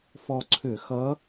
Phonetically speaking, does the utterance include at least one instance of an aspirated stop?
yes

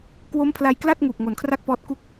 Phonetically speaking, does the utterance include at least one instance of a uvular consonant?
no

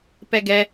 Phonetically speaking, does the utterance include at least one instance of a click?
no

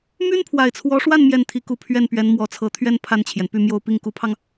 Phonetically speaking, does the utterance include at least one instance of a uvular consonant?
no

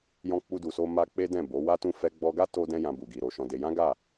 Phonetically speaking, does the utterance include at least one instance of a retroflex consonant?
no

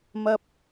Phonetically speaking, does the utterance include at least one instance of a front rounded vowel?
no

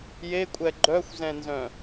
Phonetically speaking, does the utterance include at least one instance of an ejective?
yes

